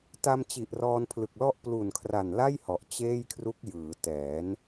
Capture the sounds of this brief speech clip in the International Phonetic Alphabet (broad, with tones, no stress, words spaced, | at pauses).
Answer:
ta˧mt͡ɕi˨˩ʔ rɔː˧npʰlɯ˨˩k̚lɔ˥˩ʔ plu˨˩nkʰra˨˩nla˥˩j hɔ˨˩ʔt͡ɕeː˥˩jkʰru˦˥k̚ jɯː˩˦tɛː˩˦n